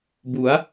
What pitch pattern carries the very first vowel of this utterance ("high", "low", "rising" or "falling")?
rising